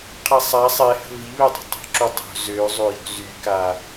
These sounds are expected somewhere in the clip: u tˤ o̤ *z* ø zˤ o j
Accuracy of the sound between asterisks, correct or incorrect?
correct